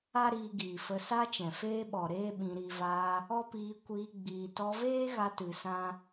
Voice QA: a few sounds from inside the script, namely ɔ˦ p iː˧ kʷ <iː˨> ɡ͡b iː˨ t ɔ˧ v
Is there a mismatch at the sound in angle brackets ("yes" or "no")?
yes